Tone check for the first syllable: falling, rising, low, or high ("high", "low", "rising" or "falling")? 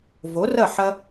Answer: rising